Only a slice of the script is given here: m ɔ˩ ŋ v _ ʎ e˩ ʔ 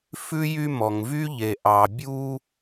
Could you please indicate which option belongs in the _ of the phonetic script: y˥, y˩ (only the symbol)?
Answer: y˥